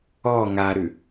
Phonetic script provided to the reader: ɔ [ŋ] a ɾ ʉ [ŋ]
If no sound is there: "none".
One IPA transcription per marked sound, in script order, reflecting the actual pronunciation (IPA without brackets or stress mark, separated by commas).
ŋ, none